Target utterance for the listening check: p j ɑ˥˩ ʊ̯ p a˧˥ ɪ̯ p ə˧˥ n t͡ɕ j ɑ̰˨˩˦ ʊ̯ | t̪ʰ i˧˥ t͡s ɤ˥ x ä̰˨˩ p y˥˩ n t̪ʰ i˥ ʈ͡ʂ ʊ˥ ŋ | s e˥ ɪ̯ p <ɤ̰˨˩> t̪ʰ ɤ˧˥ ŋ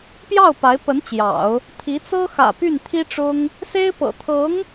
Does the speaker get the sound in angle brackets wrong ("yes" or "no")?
no